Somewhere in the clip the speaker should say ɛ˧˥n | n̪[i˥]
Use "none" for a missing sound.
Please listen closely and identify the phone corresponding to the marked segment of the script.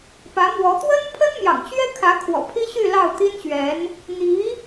i˧˥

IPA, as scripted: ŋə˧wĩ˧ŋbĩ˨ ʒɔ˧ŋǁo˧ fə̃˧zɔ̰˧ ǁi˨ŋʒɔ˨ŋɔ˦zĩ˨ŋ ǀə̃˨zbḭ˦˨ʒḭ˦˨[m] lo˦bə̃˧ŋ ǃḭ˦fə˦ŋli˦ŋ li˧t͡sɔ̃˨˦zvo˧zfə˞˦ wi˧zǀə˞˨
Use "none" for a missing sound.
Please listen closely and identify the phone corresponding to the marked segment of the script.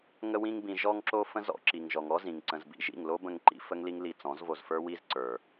ŋ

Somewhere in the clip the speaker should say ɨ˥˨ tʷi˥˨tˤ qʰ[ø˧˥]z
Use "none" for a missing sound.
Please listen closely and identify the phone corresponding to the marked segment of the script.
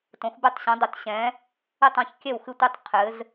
ɘ˧˥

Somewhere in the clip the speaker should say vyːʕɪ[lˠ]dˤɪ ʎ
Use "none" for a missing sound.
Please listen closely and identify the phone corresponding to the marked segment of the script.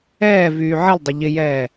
lˠ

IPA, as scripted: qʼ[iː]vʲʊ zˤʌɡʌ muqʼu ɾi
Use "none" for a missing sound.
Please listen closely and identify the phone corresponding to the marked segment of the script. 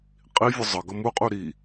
i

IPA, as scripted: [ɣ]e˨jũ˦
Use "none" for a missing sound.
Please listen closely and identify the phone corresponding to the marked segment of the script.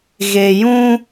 ɣ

